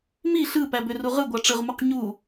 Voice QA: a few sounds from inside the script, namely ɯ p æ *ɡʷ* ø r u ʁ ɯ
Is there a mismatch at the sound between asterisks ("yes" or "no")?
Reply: yes